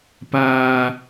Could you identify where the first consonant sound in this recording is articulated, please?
labial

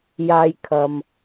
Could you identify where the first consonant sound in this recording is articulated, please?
palatal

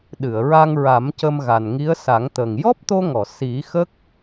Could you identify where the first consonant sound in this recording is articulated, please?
alveolar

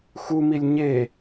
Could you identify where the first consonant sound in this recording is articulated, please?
velar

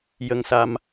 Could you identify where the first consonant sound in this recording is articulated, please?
palatal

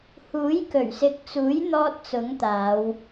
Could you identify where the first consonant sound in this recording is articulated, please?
glottal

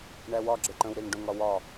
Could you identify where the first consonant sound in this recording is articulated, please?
retroflex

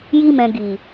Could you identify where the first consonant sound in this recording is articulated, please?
palatal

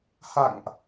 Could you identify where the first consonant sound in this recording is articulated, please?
glottal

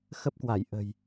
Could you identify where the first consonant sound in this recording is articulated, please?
velar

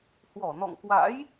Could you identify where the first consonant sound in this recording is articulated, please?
glottal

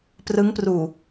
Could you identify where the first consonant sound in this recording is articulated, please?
labial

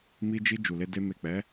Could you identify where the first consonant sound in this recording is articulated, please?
labial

